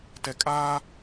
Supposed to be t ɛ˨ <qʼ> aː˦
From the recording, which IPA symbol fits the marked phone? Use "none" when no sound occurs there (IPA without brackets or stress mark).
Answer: kʼ